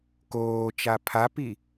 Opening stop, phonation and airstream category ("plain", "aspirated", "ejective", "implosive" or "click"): plain